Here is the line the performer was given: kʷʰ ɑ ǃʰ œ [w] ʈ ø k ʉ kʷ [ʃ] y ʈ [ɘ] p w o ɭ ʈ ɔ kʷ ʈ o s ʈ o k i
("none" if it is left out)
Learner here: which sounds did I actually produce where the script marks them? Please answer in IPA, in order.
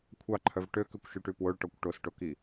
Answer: v, ʃ, ʉ

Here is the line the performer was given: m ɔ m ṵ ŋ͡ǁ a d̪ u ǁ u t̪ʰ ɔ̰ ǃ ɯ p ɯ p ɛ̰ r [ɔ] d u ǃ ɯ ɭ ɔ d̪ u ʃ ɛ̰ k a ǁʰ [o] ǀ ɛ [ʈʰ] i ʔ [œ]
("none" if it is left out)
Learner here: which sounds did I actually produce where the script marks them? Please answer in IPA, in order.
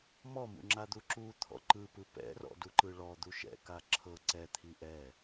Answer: ɔ̰, ɤ, t̪ʰ, ɛ

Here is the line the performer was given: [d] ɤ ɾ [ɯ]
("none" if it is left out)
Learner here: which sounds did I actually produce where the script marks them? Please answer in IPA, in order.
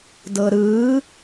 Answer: d, ɯ

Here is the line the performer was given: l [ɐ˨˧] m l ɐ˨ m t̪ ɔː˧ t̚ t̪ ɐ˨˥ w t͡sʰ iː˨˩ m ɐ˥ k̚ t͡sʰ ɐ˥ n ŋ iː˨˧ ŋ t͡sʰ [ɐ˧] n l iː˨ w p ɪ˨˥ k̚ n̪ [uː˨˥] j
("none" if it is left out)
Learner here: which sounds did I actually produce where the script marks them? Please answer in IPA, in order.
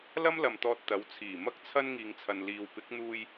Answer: ɐ˥, ɐ˨, uː˧

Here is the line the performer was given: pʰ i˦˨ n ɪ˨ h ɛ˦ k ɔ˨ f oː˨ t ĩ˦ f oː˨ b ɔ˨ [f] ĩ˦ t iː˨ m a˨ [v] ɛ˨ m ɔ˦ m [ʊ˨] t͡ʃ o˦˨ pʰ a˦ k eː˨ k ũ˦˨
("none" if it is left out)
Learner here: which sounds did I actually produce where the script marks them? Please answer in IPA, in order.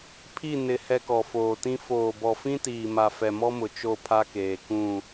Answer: f, f, ʊ˨

